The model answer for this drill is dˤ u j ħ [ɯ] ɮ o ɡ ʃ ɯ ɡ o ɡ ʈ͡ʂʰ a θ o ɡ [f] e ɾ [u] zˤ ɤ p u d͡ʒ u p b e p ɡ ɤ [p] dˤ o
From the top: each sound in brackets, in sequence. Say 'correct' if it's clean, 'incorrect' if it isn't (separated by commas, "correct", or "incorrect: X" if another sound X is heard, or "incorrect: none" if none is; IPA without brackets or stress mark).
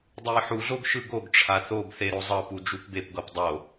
incorrect: u, incorrect: θ, incorrect: o, correct